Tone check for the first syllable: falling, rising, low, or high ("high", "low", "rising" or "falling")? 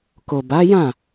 low